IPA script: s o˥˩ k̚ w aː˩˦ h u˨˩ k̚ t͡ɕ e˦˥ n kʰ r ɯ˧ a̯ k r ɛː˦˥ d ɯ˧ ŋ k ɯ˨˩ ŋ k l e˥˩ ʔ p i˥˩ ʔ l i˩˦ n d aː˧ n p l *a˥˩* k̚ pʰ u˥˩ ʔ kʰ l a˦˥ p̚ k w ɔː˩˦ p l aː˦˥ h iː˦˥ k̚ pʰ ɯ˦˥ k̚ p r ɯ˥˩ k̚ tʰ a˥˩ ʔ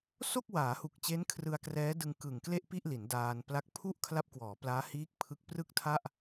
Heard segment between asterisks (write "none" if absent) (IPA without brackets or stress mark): a˥˩